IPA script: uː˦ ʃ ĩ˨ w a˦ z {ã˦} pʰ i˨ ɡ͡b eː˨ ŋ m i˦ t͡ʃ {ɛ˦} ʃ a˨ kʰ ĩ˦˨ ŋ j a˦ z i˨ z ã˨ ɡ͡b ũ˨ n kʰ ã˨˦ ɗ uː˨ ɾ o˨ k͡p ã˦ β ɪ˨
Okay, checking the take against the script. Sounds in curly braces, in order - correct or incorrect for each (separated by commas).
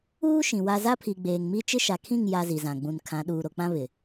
incorrect, incorrect